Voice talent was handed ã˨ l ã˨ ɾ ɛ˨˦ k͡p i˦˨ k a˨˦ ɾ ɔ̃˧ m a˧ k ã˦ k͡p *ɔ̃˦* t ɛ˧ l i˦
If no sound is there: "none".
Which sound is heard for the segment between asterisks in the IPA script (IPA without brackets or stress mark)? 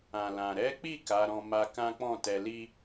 ɔ̃˦˨